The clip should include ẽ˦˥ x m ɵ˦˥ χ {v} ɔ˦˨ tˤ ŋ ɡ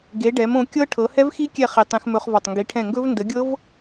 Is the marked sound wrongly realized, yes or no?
no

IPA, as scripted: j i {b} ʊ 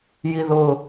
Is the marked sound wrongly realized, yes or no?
yes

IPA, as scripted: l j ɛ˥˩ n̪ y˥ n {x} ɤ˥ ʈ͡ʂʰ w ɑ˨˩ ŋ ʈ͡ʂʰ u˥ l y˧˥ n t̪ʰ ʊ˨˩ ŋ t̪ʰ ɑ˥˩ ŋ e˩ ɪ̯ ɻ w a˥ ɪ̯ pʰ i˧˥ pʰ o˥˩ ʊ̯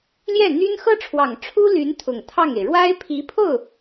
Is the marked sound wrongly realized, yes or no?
no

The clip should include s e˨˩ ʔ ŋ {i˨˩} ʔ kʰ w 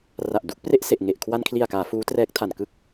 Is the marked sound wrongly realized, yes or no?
yes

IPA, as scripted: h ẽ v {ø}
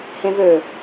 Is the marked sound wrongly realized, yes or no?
no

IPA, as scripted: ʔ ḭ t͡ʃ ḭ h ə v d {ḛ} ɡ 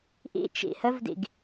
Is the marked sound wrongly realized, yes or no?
yes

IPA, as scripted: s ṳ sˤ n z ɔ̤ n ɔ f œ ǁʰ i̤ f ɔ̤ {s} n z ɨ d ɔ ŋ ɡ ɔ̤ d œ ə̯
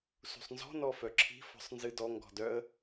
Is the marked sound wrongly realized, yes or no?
yes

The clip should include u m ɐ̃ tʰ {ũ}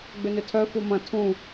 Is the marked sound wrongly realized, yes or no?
no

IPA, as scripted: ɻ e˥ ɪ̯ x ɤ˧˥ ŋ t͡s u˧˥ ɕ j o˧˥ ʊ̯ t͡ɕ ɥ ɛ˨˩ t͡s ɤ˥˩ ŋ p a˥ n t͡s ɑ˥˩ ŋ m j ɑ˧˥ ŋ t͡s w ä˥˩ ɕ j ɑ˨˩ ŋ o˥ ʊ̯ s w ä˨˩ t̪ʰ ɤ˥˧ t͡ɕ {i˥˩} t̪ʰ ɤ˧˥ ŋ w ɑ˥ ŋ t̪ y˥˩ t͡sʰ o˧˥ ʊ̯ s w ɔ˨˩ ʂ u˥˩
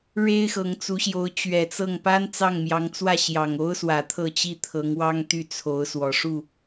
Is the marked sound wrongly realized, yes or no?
no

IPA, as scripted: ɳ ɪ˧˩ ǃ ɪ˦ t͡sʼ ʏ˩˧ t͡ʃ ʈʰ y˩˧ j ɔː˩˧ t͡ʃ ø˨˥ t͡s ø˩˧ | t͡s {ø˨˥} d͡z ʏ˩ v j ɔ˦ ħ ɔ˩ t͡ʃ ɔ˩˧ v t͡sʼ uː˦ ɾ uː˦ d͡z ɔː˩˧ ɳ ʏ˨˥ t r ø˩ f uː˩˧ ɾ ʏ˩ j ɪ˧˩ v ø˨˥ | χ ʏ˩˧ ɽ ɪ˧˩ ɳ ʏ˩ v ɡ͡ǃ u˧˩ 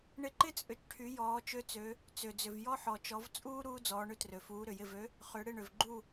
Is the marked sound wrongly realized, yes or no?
yes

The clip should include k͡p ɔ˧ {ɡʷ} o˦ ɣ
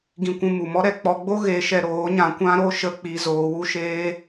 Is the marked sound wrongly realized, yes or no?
yes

